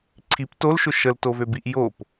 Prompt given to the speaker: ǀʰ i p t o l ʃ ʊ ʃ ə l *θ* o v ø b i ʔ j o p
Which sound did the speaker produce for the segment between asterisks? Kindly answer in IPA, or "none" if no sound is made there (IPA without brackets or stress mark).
t